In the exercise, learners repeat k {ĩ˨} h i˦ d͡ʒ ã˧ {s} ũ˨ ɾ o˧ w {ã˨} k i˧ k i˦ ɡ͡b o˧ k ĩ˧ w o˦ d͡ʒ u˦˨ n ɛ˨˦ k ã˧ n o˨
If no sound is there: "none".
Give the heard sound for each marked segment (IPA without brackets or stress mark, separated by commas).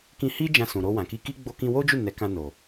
ĩ˧, s, ã˨